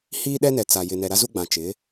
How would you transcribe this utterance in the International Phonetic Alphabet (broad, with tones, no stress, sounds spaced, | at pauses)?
h iː˦ ɗ ɛ˦ n ɛ˨ t͡s a˨ j ɪ˨ n ɛ˨ ɾ a˦ z u˦ ɡ͡b ã˨ t͡ʃ ɪ˨˦